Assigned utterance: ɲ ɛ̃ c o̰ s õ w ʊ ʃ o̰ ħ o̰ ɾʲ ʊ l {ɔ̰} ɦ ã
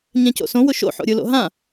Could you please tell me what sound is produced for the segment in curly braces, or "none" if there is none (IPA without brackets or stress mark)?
o̰